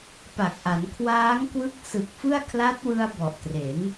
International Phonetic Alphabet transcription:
p a˨˩ k̚ ʔ a˩˦ n kʰ w aː˦˥ ŋ k w ɯ˦˥ k̚ s ɯ˨˩ k̚ f ɯ˥˩ a̯ kʰ l a˦˥ t̚ w ɯ˧ a̯ b ɔ˨˩ ʔ t r e˩˦ n

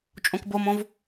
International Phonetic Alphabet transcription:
t͡ʃʼ õ k b o m õ v

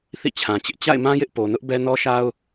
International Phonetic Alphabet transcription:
θ ḭ˦˨ t͡ɕʰ ã˨ t͡ɕ ɪ˦ ʔ t͡ɕ a̰˦˨ ɪ̯ m ã˦ j ɪ˦ ʔ p o˨ n ʊ˦ ʔ b ɛ˦ n ɔ˦ ʃ a˦ ʊ̯

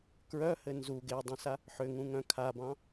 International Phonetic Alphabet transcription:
k ɹ œ h ɘ n z u ɡ e dˤ œ̃ s a | ħ ʏ ŋ ũ ŋ œ̃ kʰ a b ɑ̃

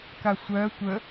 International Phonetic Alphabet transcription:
k a sʷ ɜ tʷ ə

